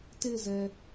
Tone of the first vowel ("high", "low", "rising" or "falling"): falling